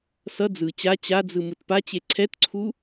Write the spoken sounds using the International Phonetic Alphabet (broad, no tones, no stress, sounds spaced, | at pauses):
s ʌ d͡z ɯ t͡ɕ a t͡ɕ a d͡z ɯ m ɯ t p a t͡ɕ e ǀʰ ɛ t ǀʰ u